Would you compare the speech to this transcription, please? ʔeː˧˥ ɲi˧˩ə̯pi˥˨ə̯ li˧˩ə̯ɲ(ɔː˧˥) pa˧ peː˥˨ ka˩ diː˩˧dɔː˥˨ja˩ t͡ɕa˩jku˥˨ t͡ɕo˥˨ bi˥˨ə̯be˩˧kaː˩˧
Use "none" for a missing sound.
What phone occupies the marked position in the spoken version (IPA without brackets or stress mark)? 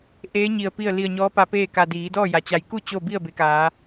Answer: ɔː˧˥